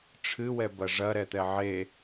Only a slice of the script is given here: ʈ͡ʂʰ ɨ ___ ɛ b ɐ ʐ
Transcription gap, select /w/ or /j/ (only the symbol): w